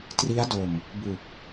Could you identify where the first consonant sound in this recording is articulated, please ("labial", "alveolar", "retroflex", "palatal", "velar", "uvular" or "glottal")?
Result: alveolar